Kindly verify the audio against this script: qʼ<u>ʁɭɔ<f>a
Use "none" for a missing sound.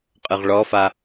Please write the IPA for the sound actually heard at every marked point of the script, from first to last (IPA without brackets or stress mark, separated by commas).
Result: ɯ, f